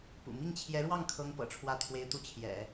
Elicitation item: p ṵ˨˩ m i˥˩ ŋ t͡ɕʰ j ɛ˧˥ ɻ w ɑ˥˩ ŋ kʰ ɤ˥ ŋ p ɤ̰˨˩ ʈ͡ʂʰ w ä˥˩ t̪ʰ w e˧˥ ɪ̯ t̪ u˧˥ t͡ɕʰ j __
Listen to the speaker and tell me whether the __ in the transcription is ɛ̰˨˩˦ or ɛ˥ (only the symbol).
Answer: ɛ̰˨˩˦